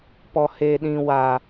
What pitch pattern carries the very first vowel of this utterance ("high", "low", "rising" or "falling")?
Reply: low